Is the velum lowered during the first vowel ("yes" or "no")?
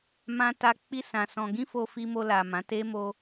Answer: yes